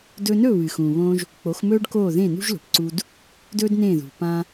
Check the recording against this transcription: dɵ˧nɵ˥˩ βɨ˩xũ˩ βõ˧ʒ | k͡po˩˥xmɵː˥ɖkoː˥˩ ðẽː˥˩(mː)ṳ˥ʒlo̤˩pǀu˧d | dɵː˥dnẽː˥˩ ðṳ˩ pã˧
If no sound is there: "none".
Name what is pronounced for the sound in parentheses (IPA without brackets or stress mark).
n